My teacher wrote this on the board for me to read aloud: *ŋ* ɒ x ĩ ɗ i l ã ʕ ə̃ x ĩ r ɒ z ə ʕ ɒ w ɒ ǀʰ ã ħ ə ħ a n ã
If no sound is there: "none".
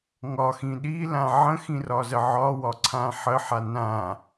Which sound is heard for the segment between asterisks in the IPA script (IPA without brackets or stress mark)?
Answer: ŋ